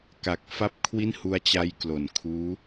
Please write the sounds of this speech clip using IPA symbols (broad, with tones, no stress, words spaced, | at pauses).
ka˨˩k̚fa˥˩p̚ kʰwi˥˩nhu˧a̯t͡ɕa˧j klo˩˦nkʰuː˦˥